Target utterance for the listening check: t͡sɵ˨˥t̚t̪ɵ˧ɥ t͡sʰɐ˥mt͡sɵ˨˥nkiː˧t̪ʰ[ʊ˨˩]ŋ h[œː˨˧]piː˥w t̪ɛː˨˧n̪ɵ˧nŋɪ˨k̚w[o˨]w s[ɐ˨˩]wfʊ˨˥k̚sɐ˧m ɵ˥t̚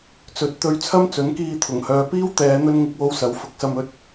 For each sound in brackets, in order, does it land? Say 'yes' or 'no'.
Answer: yes, yes, no, no

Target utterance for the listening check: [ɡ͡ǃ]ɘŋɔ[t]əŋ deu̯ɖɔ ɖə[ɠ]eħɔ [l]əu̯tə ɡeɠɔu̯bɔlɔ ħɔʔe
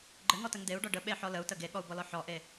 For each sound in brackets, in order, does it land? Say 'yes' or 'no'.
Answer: yes, yes, no, yes

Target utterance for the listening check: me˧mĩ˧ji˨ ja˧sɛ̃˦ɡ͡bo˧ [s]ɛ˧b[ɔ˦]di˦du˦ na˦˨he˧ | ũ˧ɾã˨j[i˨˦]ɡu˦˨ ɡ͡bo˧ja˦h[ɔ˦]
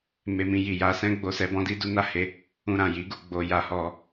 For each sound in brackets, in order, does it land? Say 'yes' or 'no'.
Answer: yes, no, yes, no

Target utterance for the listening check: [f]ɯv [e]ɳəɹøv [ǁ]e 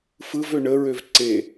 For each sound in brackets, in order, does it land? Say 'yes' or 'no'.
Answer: yes, no, no

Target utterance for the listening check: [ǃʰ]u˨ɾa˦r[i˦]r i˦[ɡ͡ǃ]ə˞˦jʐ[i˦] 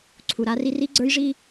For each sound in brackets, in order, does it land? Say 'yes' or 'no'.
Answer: no, yes, no, yes

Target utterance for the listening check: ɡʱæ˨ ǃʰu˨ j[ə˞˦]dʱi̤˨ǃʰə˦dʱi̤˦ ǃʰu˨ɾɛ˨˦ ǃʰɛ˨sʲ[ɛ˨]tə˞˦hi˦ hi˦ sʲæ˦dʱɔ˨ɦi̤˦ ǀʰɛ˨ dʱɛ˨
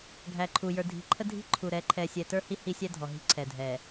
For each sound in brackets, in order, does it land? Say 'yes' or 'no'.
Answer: no, yes

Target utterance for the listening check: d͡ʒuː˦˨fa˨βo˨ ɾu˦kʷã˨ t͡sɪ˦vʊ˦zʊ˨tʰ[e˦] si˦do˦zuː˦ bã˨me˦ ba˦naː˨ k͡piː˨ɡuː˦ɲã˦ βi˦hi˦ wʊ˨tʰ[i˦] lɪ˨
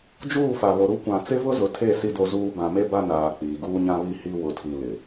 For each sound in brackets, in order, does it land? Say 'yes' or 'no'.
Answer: no, no

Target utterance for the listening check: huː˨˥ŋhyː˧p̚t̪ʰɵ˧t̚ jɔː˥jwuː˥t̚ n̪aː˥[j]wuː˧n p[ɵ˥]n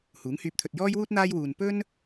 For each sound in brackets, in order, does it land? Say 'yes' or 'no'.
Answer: yes, yes

